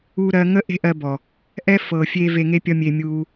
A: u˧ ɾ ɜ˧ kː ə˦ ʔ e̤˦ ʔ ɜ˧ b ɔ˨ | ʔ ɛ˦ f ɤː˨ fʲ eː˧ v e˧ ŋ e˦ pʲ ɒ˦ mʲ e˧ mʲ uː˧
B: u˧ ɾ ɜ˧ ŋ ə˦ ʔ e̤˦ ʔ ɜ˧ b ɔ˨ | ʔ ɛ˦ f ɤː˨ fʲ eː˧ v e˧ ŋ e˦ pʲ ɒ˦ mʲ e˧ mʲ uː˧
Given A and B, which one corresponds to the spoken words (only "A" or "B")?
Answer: B